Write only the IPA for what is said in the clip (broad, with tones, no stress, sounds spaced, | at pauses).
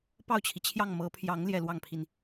p ɑ˥˩ ʊ̯ t͡ɕʰ i˩ t͡ɕʰ j ɑ˥˩ ŋ m ɤ˧˥ pʰ j ɑ˧˥ ŋ l j ɛ˥˧ l w ɑ˥˩ ŋ pʰ i˩ n